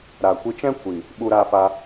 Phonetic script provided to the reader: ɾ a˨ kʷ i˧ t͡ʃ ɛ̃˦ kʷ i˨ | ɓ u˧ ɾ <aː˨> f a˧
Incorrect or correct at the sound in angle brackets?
incorrect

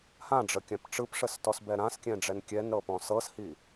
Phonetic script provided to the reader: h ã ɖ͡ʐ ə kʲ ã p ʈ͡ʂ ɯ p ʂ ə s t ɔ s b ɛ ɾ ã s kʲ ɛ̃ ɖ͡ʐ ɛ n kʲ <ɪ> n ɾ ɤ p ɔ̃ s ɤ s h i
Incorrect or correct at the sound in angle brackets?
incorrect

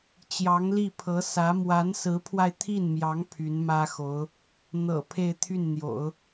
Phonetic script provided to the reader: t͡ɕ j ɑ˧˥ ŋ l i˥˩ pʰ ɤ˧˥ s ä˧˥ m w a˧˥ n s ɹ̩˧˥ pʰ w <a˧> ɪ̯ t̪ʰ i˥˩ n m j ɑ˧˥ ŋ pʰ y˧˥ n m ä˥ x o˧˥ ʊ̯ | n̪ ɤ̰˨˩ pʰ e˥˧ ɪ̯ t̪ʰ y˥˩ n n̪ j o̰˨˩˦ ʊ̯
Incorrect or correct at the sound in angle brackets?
correct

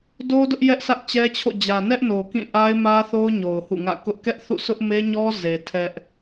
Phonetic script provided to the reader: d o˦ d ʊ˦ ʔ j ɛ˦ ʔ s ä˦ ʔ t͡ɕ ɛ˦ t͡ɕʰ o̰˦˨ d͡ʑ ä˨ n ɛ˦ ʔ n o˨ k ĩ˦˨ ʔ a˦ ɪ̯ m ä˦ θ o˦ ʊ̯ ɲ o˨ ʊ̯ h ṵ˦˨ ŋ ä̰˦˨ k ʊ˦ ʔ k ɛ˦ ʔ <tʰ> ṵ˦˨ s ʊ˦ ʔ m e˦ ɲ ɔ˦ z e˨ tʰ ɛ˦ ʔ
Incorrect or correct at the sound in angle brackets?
incorrect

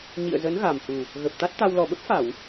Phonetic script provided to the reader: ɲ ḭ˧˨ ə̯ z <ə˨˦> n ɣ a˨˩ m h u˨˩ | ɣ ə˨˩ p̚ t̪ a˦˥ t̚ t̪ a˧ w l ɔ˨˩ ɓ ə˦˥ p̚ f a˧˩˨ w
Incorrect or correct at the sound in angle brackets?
correct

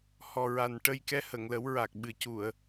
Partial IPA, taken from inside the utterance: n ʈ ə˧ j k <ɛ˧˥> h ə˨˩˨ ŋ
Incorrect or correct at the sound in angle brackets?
correct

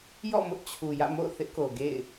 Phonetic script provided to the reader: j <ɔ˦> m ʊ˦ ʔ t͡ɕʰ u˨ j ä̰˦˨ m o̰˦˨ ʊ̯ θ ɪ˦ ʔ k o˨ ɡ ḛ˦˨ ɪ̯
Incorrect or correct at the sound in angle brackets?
incorrect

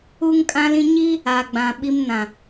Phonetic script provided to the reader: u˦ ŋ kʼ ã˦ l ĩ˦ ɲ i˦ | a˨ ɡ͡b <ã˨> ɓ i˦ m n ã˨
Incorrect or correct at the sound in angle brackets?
correct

